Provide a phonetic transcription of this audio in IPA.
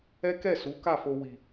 ɛ˦kɛ˦˨su˨˦ ka˦˨fo˧ wi˨

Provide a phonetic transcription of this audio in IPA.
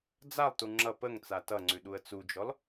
d͡zalˠtu ŋ͡ǁʌ pəŋ t͡satʌŋ͡ǀʉ ɗuə̯t͡sud͡ʒɔl

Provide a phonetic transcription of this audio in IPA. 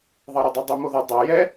ðˤɑɾodˤœdˤu moðœ dˤæ jɛ

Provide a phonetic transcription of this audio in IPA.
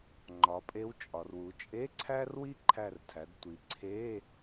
ŋ͡ǃɒ˩˧pʼe˧˥w t͡ʃʼɒ˩rwu˩˧t͡ʃʼe˧˥˧ ǀʰæ˥rwi˥ ǃʰæ˧˩rtʰæ˩˧dtʷi˩˧ ǀʰe˧˥˧

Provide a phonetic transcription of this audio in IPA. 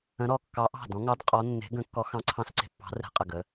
ə̃˨˦ɾɔ˧˩ kːɑ˨˦ʔɑ̤˧˩dɔ̃˨˦ŋɑ˨˦d qʼɔ˨˦ nːe̤˨˦ɡə̃˨˦kːɔ˨˦ xɑ̃˨˦ǀʰɑ̃˧˩sǀe̤˧˩pːɑ̤˨˦ re̤˨˦ qʼə˧˩ɡə˨˦

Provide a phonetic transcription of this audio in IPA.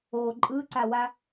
o ǃʼɯǀawa

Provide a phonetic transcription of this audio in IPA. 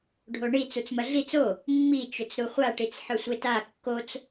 ɖʱoɳi t͡sut͡smɐɮit͡s o | mːi t͡ʃɵt͡sɾuχʷa ʈit͡sħɵsʷeta kːot͡s

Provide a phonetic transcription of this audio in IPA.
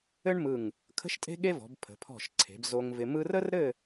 ɘ˥ɳmɯ˧˩ŋ | kʰə̤˥ʃtʼe̤˥ɠe˥vɔ̤˩˧b pʰə̤˩˧pʰɔ̤˧˩ʃǀʰe̤˩˧b zo˧ŋvɪ˧mɯ˥r ə˥rɾɘ˥˧

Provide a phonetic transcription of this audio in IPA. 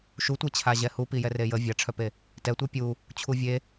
ʃutʷet͡ɕʰa ʑɛhu pijɛrejə vʲaʈ͡ʂʰœpe | tɛtʷœ pʲu | t͡ɕʰuvʲe

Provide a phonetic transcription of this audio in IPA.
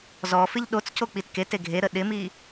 zɔfɪʎ ɗot͡scok͡pit kete ɡʱeɾə ɗɪmi

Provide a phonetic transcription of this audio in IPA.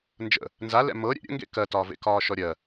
nd͡ʒə̰ | nzalɛ̰ mɤ ɾʲɛ̰ɾʲə̰ŋɡḛ kɜtɒːvḛ kɒːʃɔɾʲɜ

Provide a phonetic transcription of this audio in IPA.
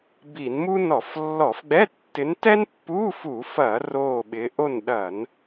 bi˧˩˧nmu˥ nɔ˧˩˧flːɔ˧˩˧fɡ͡bɛ˧˥˧ tːɪ˨˦ntɛ˥npːu˧˥˧ fu˧˩˧fɐ˧˩˧ roː˦˨ɓɪ˨˦ ʔo˦˨nɗɐ˧˩˧n

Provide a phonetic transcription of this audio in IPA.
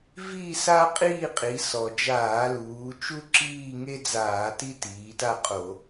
vi˥˧sa˥ qʼiː˥˧ qʼi˩˧ sɔ˩d͡ʒaː˧˩˧luː˩˧t͡ʃu˥ ǁiː˥˧ŋe˥d͡zaː˧˩˧ ti˥tiː˩˧ta˥˧qʼo˧˩˧

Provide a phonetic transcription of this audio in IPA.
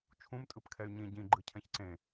t͡ʃʰũm tʼɯpkʰɛy̯ɲĩ ɟĩ ɡ͡ǃɯcʰɛ̃çǀẽ

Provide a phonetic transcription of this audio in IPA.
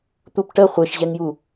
t̪upʈə χʷeʃʑɛŋju

